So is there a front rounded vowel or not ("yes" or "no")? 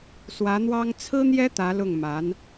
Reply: no